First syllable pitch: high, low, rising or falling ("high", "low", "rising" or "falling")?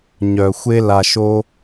low